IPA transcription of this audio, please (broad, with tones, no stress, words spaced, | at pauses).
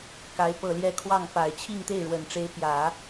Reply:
ka˧˥ɪ̯ pɤ˨˩ljɛ˧˥ kʰwɑ˥˩ŋ pa˨˩ɪ̯ t͡ɕʰi˥˧ŋ t̪e˥˩ɪ̯ɻwə˨˩n ʈ͡ʂe˧˥ɪ̯pjä˨˩˦